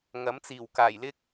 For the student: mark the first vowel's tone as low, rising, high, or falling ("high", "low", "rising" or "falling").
rising